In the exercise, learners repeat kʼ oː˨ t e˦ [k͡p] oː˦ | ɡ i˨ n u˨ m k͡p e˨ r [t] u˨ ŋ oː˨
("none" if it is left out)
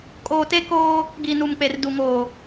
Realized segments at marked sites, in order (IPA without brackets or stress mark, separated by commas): k, d